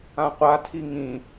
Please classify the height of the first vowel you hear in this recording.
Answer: low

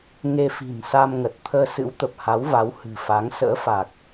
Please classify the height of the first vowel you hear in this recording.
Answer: mid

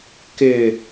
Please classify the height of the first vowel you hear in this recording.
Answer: high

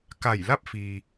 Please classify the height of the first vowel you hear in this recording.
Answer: low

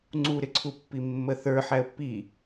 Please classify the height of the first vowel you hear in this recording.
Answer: high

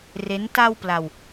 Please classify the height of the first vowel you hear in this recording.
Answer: mid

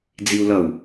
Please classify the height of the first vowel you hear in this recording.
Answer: high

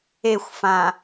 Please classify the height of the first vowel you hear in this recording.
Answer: mid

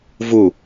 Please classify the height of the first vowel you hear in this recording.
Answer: high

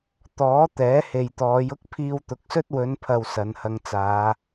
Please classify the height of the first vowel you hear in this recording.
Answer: mid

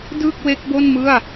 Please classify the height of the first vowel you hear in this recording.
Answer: high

